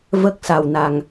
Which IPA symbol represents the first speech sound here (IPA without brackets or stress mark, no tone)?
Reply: v